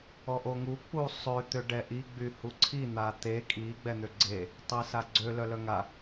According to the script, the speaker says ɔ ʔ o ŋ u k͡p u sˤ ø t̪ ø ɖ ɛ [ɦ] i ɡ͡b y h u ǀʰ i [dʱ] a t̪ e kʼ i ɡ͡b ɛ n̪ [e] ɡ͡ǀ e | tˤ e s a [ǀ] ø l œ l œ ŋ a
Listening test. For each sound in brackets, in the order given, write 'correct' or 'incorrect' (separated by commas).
incorrect, incorrect, incorrect, incorrect